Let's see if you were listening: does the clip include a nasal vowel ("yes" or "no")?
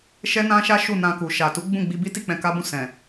yes